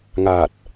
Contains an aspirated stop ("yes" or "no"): no